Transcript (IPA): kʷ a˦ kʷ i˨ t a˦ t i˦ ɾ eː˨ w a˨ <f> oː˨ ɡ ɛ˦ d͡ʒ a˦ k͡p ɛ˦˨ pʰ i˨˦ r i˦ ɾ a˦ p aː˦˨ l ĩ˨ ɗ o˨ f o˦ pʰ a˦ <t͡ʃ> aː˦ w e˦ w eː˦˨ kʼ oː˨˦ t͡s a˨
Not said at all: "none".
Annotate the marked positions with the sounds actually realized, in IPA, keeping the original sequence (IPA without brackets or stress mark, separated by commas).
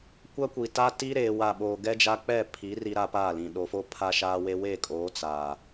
ɓ, ʃ